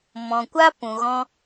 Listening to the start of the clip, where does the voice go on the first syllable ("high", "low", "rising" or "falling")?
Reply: low